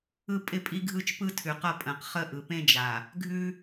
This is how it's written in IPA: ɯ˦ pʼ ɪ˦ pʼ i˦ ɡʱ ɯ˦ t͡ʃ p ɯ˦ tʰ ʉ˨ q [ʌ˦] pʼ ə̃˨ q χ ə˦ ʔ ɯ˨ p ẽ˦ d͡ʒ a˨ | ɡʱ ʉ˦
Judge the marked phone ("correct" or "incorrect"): correct